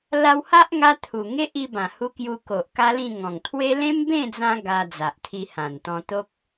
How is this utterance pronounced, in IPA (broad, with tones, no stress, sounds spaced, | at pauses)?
l a˧ w h a˦ ʔ ŋ a˧ t̪ʰ u˨˩ ŋ e˦ ʔ i˧ b ã˨˩ h u˧ k j u˧ k o˨ ʔ k a˦ l ĩ˥˧ ŋ ɔ̃˨˩ ŋ t̪ʰ w e˦ l ẽ˦ m b ẽ˥˧ d͡z ã˧ ɡ a˧ d͡z a˨ ʔ t̪ʰ i˧ h ã˨˩ n t̪ ɔ̃˧ t̪ o˦ k̚